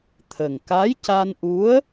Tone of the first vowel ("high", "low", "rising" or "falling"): low